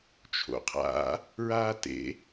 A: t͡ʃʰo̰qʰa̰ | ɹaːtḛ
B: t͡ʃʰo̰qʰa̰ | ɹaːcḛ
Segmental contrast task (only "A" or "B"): A